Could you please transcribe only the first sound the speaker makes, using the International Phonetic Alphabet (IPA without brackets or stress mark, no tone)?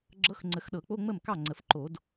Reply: ɡ͡ǁ